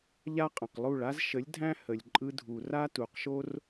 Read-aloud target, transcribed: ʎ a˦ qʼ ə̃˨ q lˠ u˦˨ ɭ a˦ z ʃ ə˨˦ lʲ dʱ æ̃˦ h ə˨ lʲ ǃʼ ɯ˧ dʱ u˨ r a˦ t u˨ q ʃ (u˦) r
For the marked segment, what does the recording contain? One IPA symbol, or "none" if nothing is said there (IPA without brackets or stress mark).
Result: o˦